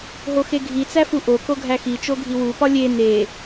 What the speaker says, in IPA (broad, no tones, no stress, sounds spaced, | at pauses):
ɦ o x e ɡʱ i t͡s æ f u ʔ o k o ɡʱ æ x i t͡ʃ o ɡʱ i w u p ɒ lʲ e n e